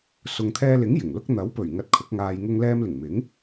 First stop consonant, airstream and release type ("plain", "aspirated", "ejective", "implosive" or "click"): aspirated